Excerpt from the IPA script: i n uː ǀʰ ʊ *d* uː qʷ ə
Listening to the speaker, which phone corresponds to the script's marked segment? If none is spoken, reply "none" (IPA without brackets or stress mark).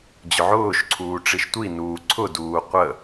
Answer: d